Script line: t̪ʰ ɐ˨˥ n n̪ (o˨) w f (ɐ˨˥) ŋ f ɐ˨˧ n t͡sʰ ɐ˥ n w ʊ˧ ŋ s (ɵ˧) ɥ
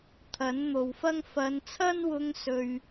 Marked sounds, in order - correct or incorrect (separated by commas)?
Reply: correct, incorrect, correct